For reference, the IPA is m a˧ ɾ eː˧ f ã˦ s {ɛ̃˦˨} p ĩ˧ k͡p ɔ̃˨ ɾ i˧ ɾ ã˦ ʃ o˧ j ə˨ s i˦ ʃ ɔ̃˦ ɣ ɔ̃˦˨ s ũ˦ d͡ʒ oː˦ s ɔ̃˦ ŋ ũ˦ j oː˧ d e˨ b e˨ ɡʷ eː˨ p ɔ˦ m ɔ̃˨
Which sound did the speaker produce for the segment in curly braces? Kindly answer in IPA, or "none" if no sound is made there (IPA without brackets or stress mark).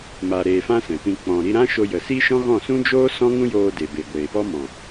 ɛ̃˨